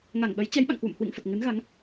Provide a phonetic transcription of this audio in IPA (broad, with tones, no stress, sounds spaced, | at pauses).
ŋ a˧˩ ŋ ɓ ə˨˦ j t͡ɕ ɛ˨˦ j ɓ a̰˧˨ ŋ k w ṵ˧˨ m h w ḭ˧˨ ŋ f ə˨˩ t̚ ŋ ɨ˨˦ n ɣ a˨˦ ŋ